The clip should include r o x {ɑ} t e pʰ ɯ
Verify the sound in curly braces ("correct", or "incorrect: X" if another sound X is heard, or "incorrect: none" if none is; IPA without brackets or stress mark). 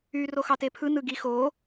correct